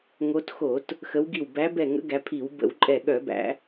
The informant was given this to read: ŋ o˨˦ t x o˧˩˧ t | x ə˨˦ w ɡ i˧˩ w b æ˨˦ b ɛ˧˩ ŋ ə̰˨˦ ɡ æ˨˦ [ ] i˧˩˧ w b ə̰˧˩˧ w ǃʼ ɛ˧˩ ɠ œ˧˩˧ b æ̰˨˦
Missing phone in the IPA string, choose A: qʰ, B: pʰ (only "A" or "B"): B